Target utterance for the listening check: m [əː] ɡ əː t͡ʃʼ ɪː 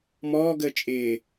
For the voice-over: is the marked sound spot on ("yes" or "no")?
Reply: no